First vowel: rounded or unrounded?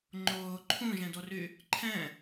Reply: rounded